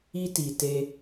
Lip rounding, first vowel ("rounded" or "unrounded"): unrounded